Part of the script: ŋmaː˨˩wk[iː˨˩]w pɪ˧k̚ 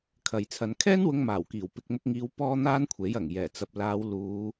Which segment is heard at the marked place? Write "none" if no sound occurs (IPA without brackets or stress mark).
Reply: iː˨˩